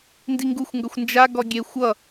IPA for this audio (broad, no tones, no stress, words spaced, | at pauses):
ndiŋɡuxʷŋɡʌxʷ nd͡ʒaɡɔ ɡʲe xʷʌ